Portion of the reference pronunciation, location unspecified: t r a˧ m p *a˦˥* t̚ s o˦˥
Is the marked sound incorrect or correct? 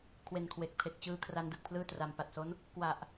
incorrect